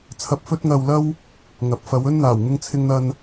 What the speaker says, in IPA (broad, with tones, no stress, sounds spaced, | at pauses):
t͡sʰ ɐ˧ p̚ f ɵ˥ t̚ ŋ ɐ˧ w l ɐ˥ w | ŋ ɐ˨˥ p̚ f ɐ˨˧ w ɵ˥ n n̪ aː˨˩ w ŋ ɪ˧ ŋ t͡sʰ ɪ˧ ŋ n̪ ɐ˧ n